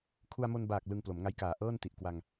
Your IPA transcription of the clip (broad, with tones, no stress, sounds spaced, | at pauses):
kʰ u˧ a̯ m o˧ n b aː˨˩ k̚ l ɯ˧ ŋ p l o˩˦ m ŋ a˦˥ j k aː˨˩ ʔ ɤː˥˩ n t i˨˩ ʔ k w a˧ ŋ